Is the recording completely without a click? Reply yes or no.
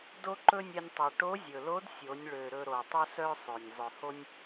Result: no